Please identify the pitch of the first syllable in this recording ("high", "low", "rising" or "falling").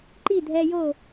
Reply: falling